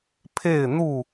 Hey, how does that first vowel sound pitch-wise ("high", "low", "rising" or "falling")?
falling